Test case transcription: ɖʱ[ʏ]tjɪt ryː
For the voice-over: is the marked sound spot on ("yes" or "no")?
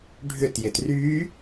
yes